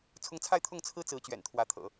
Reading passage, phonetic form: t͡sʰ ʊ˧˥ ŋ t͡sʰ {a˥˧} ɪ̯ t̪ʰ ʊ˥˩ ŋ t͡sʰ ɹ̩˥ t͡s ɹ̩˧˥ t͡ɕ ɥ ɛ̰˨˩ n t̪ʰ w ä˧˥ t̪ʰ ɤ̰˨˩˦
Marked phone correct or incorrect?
correct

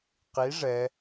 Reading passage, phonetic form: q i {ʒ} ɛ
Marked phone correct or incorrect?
incorrect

